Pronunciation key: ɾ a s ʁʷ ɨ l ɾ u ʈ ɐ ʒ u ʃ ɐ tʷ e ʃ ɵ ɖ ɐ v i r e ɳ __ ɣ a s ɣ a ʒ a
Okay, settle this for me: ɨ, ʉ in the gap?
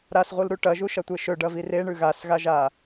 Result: ʉ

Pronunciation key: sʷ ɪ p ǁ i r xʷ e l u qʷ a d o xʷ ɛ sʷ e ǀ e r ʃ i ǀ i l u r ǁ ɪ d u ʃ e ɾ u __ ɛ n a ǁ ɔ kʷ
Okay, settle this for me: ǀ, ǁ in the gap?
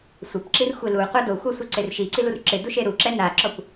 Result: ǁ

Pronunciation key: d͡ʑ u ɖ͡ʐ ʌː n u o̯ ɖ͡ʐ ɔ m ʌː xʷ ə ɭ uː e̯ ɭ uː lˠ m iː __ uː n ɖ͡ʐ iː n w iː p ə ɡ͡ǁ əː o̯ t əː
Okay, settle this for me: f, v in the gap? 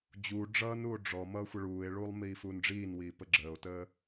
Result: f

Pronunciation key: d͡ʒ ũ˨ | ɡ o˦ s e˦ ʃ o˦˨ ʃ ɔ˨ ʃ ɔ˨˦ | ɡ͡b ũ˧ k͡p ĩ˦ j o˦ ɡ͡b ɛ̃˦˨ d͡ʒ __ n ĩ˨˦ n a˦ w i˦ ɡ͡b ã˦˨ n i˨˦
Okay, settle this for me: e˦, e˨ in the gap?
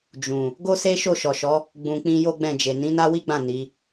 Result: e˨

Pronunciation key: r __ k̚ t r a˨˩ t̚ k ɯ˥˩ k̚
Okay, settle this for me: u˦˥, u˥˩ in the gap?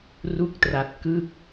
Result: u˦˥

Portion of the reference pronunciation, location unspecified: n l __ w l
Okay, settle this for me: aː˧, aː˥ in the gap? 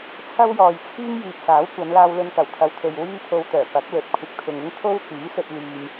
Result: aː˧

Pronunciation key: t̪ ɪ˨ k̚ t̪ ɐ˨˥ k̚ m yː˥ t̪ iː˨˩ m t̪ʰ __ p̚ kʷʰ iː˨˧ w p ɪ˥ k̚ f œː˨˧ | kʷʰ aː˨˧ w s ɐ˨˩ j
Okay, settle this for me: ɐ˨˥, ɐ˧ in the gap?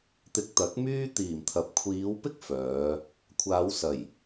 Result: ɐ˨˥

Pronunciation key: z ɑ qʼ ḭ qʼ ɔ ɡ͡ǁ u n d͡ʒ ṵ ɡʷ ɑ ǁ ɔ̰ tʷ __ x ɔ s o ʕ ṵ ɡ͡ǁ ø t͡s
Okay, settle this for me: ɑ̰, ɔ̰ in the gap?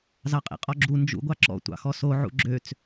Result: ɑ̰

